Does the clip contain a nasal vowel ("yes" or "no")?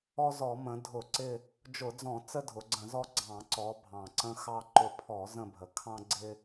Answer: yes